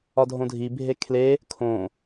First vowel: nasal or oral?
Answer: oral